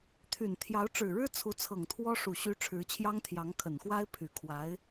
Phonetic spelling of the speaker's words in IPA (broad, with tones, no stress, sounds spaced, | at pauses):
t̪ʰ y˨˩ n t̪ʰ j ɑ˧˥ ʊ̯ ʈ͡ʂ ɻ̩˨˩ ɻ ɻ̩˥ t͡sʰ u˧˥ t͡sʰ ɤ˨˩ ŋ t̪ʰ w ɔ˥ ʂ u˨˩ ɕ y˧˥ ʈ͡ʂʰ ɻ̩˧˥ t͡ɕʰ j ɑ˥ ŋ t̪ʰ j ɑ˧˥ ŋ kʰ ə˨˩ n x w a˥ ɪ̯ pʰ y˨˩ kʰ w a˧˥ ɪ̯